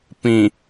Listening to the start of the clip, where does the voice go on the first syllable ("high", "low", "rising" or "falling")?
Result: low